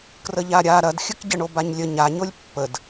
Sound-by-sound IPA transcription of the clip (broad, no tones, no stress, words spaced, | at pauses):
krəʎaɾʲa ɾɐdxʲəkɟə ɳobaɲlʲə ɲaɲolʲ pːəd